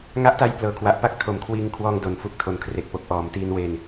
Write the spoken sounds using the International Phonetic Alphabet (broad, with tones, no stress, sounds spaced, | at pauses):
ŋ a˦˥ ʔ t a˦˥ j p l ɤː˨˩ kʰ w a˨˩ ʔ p a˥˩ k̚ tʰ o˨˩ m kʰ w iː˧ ŋ kʰ w ɔː˧ ŋ d o˩˦ n f u˨˩ k̚ tʰ o˨˩ n kʰ r e˨˩ k̚ p o˨˩ k̚ ʔ ɔː˩˦ m t iː˧ n w e˧ n